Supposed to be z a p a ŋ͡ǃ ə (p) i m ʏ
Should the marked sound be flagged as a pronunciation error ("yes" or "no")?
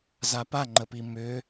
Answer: no